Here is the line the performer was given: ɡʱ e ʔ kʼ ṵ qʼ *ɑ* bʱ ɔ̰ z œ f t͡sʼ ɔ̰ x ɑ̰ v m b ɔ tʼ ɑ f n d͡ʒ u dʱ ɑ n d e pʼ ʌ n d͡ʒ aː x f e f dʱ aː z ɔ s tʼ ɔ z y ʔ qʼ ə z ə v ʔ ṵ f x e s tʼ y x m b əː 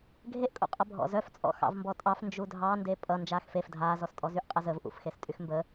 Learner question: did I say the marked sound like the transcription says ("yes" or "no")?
no